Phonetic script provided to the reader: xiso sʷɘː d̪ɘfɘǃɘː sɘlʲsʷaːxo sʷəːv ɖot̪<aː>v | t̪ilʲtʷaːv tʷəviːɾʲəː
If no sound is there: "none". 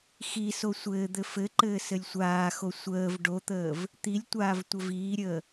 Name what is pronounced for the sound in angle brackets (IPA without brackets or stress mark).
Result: əː